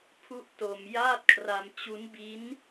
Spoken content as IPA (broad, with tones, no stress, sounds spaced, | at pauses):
pʰ u˥˩ ʔ t o˧ m j aː˥˩ t̚ kʰ r a˧ m t͡ɕ u˦˥ n b i˦˥ n